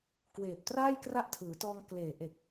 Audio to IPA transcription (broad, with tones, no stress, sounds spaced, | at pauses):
k w eː˨˩ p̚ t r aː˥˩ j k r a˦˥ ʔ tʰ ɯː˩˦ t ɔː˧ ŋ k l eː˨˩ ʔ e˨˩ k̚